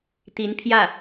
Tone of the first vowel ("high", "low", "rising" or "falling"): rising